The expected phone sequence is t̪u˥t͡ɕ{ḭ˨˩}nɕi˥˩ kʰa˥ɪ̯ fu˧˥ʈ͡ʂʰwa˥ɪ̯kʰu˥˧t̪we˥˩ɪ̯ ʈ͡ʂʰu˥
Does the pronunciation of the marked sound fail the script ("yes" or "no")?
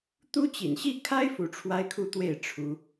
no